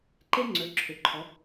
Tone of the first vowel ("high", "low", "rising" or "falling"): high